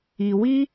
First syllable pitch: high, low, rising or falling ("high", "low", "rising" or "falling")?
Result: low